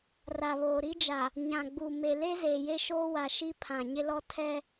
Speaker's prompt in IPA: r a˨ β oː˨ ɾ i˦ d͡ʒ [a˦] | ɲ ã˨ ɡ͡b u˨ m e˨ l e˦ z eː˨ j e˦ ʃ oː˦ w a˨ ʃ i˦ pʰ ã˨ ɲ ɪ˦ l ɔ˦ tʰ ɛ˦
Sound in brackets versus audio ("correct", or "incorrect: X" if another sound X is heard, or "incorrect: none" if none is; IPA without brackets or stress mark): incorrect: a˨